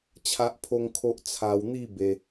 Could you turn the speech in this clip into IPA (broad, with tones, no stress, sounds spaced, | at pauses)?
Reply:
t͡ɕʰ a˦ ʔ pʰ o˦ ŋ kʰ o˦ ʔ t͡sʰ a˧ w n̪ i˥˧ b e˦